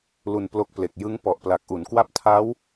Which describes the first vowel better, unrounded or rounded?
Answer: rounded